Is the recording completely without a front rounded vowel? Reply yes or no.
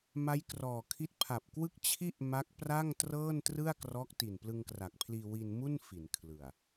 yes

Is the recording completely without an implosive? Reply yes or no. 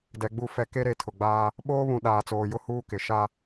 no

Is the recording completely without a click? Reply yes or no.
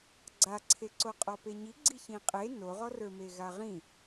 no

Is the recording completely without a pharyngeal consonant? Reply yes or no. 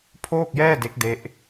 yes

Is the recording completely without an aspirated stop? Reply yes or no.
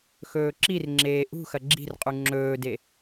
yes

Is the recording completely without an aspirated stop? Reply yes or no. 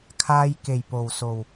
no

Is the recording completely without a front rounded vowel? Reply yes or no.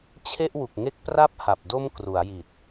yes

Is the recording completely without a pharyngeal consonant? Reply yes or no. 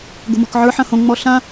no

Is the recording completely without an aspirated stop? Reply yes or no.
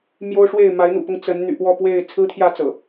no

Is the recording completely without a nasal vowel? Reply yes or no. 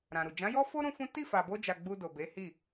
no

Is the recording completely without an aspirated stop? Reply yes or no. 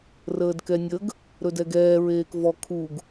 no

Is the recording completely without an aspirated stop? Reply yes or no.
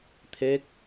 no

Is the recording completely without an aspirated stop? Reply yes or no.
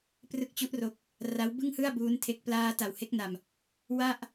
no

